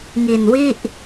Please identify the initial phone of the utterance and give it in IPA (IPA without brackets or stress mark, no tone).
ŋ